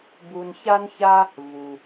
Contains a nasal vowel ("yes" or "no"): no